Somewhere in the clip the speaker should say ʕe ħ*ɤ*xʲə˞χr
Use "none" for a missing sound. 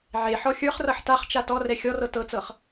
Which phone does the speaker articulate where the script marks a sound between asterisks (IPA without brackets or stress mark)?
ɔ